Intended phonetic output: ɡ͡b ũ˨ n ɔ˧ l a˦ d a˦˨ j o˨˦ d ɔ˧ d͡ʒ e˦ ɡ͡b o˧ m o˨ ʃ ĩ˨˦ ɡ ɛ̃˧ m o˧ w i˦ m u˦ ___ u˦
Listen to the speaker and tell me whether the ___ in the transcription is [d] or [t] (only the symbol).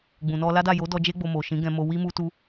t